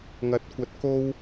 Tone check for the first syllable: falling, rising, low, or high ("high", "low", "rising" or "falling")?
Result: high